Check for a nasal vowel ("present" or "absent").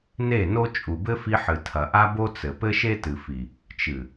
absent